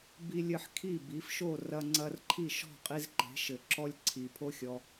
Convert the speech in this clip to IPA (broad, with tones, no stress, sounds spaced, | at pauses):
b i˧ lʲ ɘ˧ ħ kʰ i˥˩ b i˩˥ f ʃ o˥˩ r ɐ˧ ŋ͡ǀ ɐ˧ r ǃʰ i˥˩ ʃ ɔ̤˥˩ qʼ i˧ z ǃ e̤˩˥ ʃ ɘ˩ ǁ ɔ˥ lʲ ǀʰ i˩ pʰ o˥ xʲ ɔ˧